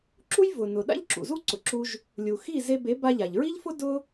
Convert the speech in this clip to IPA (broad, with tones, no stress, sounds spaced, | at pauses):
ǁ u˥ j v ʊ˩ n ʊ˩ ɗ a̰˥ ʎ ǁ ṵ˩ z u˥ ǀ ʊ˩ ǁ u˧ ʒ | lʲ u˩ x i˥˩ z e˧ b e˩˥ b a˧ ʎ a˩ ʎ ɹ i˥ ʎ f ʊ˥ d ʊ˥